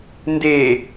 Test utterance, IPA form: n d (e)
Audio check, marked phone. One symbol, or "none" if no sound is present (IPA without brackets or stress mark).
e